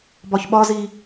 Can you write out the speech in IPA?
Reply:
b ɒ ç ɓ ɒ z i

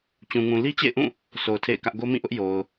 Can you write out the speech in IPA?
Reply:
t͡ɕ ũ˨ ŋ ũ˨ l i˦ t͡ɕ ḛ˦˨ ɪ̯ ʔ ũ˦˨ | s o˨ ʊ̯ tʰ ḛ˦˨ ɪ̯ k ä˦ ʔ ɡ o˦ m ĩ˦˨ ʔ ʊ˦ ʔ j o˨ ʊ̯

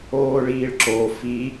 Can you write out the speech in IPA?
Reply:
oː ɭ iː ɭ ǁ o f i

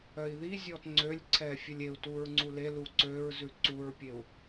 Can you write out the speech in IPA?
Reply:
œ i̯ ð i zʲ ɔ t ŋ͡ǀ ø lʲ ǀʰ ɛ fʲ ɵ lʲ e u̯ t u ɹ ŋ͡ǀ u l e l u ǀ ø ɹ z ʉ ǀ u ɹ pʲ e u̯

